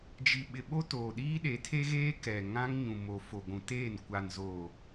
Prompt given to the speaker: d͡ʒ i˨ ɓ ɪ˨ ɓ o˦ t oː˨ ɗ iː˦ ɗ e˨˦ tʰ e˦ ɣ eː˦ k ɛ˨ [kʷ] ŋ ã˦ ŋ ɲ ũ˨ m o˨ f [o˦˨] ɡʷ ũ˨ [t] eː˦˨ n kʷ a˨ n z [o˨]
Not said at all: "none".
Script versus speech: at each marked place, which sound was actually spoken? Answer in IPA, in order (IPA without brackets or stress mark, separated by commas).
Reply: none, o˨, t, oː˨